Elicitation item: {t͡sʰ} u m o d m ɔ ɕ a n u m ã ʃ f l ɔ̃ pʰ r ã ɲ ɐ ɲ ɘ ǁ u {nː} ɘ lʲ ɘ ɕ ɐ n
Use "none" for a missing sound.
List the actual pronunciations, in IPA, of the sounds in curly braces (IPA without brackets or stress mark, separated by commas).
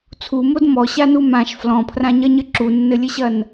t͡sʰ, nː